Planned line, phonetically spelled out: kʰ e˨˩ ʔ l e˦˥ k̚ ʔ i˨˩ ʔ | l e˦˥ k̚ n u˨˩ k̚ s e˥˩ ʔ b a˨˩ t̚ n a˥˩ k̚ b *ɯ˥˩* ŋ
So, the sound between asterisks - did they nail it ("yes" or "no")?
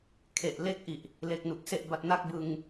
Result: no